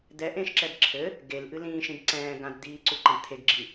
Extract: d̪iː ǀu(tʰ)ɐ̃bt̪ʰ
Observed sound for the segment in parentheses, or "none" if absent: ǃ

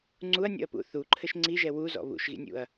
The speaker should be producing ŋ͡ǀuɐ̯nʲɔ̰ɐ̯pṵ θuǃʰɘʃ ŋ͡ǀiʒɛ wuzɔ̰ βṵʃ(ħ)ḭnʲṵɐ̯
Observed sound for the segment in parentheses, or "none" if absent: ɣ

